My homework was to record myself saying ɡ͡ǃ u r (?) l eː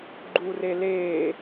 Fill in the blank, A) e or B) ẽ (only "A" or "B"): A